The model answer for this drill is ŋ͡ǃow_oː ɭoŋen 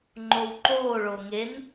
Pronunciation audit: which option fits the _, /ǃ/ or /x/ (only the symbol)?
ǃ